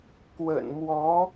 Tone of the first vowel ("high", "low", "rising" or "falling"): low